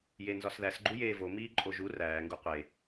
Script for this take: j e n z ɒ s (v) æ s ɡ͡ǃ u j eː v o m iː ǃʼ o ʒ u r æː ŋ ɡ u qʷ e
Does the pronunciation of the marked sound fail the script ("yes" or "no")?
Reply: yes